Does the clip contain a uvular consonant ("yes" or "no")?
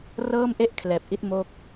no